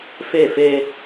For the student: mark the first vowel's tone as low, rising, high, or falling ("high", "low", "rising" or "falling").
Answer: falling